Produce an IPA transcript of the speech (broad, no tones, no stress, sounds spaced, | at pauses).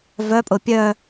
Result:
v œ pʼ ʊ pʲ œ